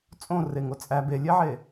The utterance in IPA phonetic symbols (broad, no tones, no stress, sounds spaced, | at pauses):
t͡sʼ õ r e ŋ o t͡sʼ æ b e lʲ e ʕ e